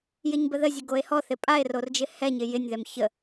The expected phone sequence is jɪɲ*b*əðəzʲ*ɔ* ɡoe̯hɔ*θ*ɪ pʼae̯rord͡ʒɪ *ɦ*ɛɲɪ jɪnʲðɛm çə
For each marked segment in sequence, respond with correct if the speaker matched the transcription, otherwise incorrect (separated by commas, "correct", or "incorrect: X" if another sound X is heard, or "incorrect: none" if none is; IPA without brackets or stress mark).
correct, incorrect: ə, correct, incorrect: h